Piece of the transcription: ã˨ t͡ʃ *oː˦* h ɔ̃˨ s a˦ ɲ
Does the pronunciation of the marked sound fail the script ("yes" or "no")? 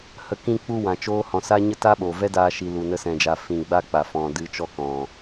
no